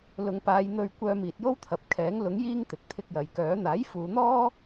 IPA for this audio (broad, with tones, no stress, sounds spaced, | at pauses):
l ʊ˨˧ ŋ p aː˨˧ j n̪ ɵ˧ ɥ kʷ œː˧ m iː˨ t̚ j o˥ w t̪ʰ ɐ˨ p̚ kʰ ɛː˨˥ ŋ l ʊ˨˥ ŋ j iː˥ ŋ t̪ ɪ˨ k̚ t̪ʰ ɪ˧ k̚ j ɐ˨ j k œː˨˥ n̪ aː˨˥ j f uː˨˧ n̪ ɔː˥